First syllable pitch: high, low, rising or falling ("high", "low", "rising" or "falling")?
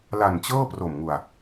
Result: low